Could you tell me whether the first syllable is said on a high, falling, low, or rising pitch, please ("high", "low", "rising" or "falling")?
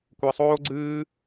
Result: low